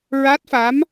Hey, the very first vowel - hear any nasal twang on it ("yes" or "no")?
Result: no